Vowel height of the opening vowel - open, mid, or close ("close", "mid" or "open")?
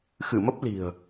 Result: close